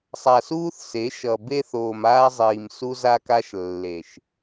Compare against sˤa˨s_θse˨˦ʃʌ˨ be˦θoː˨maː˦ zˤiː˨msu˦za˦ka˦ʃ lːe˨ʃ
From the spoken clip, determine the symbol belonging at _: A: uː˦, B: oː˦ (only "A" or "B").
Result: A